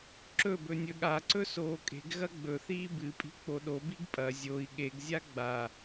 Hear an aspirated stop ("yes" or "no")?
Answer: no